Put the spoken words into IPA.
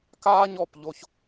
k aː˦ ɲ ɔ˨ p ʎ o˧ ç

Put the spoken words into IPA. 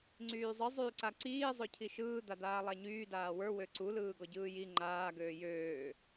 ŋ͡ǀ yː zˤ ɯ zˤ yː ǀ a ǀ iː zˤ ø cʰ i ʃ ɯː d̪ a d̪ aː lˠ a ɲ yː d aː w ə˞ w ø ǀ u l ɯː ɡ ɔ ɟ ɯː j i ŋ͡ǃ aː ɡ øː j øː

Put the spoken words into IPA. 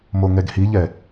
m o ŋ ɛ ɡ h i ʎ ɛ

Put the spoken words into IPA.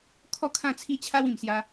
kʰ ɔ˥˧ kʰ ã˥˧ t͡sʰ i˦ t͡ɕʰ a˦ w ĩ˨˩ m s j a˧

